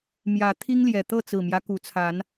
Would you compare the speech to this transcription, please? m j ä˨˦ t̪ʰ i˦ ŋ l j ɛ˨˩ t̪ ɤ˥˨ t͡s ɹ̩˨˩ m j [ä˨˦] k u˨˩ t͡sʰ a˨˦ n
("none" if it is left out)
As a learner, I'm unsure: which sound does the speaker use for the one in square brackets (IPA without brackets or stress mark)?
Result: ä˦